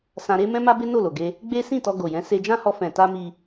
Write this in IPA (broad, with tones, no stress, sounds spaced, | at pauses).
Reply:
s ã˧ ɾ e˦ m ɛ̃˦ m a˦ b e˦ n o˦˨ l o˨ ɡ e˧ | ɡ͡b e˦ s ĩ˦˨ t ɔ˧ ɡ o˨ j ɛ̃˨˦ s e˧ d͡ʒ ã˦ h ɔ˧ f ɛ̃˨ t a˧ m i˧